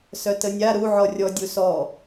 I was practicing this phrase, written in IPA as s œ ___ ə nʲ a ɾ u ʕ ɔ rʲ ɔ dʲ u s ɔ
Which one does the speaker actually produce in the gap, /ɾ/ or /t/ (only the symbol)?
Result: t